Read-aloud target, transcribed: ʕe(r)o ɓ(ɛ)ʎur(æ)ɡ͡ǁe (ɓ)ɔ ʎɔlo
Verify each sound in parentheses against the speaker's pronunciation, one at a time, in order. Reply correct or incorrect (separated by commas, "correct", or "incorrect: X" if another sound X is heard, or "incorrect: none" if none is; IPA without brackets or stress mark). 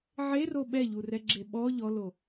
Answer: correct, correct, incorrect: ɛ, correct